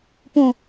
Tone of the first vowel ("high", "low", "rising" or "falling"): low